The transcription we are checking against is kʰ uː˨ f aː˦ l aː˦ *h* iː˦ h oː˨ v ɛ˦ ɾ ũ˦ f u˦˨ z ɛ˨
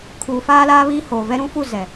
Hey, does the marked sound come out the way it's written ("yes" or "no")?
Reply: no